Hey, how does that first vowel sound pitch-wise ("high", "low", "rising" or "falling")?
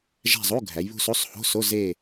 falling